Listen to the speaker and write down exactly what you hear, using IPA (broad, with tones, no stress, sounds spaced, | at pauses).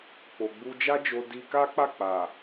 k͡p o˧ ɡ͡b u˦ d͡ʒ a˦ d͡ʒ o˧ d i˧ k a˦ k͡p a˦˨ k͡p a˨